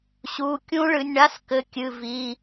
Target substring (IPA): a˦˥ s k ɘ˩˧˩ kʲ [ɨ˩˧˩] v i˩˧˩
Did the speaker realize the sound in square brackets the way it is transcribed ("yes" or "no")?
yes